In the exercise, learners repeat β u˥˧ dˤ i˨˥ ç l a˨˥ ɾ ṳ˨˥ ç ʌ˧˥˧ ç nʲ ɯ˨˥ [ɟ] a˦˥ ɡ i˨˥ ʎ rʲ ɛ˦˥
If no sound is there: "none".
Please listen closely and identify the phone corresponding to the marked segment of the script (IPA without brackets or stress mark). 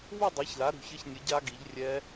ɟ